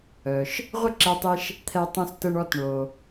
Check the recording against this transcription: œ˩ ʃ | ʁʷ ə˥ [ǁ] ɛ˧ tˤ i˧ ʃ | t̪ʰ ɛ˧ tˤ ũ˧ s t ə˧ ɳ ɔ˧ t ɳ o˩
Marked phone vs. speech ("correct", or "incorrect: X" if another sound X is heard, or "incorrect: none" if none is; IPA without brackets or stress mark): correct